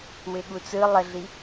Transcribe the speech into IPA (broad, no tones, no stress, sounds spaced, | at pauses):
w ɪ ɠ u t͡s ɯ lˠ ə ɮ i